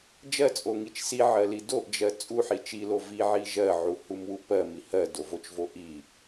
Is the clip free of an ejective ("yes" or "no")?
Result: no